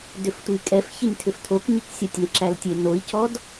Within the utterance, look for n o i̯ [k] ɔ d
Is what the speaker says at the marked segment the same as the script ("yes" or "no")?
no